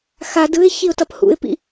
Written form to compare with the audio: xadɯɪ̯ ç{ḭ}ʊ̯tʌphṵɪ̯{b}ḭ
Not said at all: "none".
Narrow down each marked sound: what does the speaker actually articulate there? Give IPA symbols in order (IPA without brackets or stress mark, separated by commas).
i, p